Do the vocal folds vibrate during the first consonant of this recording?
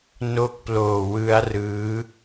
yes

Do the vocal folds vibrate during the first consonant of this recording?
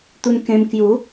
no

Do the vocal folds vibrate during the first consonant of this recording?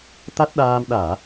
no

